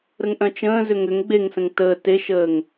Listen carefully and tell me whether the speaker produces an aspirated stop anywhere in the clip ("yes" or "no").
no